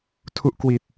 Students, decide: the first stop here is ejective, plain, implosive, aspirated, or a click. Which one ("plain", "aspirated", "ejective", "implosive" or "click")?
aspirated